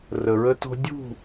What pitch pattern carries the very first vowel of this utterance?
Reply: low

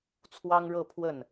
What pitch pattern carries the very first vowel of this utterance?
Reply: high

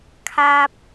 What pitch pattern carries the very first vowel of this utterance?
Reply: high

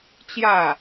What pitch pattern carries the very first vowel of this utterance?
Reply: falling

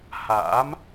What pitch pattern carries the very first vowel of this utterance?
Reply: rising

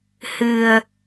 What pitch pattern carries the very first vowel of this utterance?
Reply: low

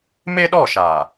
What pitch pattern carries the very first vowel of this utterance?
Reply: high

